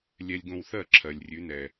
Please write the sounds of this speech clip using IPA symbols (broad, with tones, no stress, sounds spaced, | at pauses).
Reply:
lʲ ɛ˧ lʲ ɡ õ˧ w θ ɜ˦˨ ǁʰ ɜ˨ lʲ rʲ ʉ˨˦ n ɛ˨